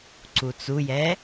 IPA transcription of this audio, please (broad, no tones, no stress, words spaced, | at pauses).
ǀut͡sujɛ